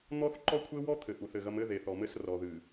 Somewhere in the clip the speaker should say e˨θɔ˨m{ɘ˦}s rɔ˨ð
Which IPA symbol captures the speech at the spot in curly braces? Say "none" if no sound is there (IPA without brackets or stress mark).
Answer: ɘ˦